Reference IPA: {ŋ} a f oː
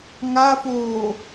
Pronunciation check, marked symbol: correct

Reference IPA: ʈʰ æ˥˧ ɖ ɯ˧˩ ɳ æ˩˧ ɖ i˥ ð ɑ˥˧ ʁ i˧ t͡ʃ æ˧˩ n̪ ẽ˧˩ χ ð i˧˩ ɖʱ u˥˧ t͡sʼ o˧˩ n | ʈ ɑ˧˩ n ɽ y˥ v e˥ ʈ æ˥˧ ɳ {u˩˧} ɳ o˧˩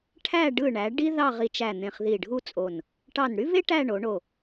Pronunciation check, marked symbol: incorrect: o˩˧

